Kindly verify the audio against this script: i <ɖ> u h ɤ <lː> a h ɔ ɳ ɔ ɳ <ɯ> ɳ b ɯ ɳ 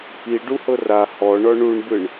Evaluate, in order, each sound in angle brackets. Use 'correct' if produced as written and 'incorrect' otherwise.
correct, incorrect, incorrect

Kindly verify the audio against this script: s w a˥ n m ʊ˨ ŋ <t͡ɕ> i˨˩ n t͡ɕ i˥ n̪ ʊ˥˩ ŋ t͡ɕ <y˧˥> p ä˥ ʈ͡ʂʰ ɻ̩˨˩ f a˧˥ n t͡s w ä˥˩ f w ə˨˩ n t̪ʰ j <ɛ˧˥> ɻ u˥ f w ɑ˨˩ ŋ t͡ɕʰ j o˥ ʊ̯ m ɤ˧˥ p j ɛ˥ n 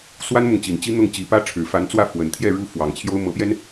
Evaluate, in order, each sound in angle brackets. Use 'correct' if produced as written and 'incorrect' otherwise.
correct, incorrect, incorrect

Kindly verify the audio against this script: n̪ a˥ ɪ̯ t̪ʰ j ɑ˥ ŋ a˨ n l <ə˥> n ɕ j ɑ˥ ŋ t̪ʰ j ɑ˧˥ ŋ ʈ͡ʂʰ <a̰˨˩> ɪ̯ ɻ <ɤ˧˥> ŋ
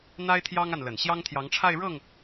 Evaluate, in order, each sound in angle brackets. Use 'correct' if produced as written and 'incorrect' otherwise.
incorrect, incorrect, incorrect

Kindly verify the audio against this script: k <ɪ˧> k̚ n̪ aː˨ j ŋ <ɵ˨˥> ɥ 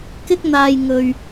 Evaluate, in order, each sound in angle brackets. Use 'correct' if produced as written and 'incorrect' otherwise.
correct, incorrect

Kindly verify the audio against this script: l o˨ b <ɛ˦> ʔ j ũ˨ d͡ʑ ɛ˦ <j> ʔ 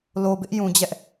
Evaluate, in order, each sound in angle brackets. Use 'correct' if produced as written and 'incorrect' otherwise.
incorrect, incorrect

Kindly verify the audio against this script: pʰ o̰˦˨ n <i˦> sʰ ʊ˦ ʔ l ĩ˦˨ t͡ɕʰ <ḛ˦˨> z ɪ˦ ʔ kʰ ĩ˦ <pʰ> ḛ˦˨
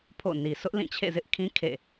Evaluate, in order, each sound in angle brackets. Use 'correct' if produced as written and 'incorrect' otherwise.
incorrect, correct, incorrect

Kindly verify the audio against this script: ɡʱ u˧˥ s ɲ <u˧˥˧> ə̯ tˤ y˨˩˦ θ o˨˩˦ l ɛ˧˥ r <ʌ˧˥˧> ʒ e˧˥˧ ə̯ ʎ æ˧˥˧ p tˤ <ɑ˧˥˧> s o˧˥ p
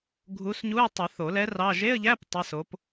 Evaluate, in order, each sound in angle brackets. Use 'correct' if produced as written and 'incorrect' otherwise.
correct, incorrect, correct

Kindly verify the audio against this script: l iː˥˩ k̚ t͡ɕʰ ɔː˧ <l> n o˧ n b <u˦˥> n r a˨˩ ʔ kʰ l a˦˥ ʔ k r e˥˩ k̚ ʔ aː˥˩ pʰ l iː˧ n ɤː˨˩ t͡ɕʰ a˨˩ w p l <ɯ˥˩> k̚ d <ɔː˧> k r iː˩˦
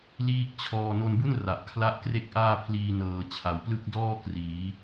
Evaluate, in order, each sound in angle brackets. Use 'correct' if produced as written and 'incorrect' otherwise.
incorrect, incorrect, correct, incorrect

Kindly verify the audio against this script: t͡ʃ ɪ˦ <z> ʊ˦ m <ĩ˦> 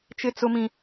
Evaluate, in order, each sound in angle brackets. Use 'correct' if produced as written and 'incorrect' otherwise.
incorrect, correct

